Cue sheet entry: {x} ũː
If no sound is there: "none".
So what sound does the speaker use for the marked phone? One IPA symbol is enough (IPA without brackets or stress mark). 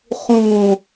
χ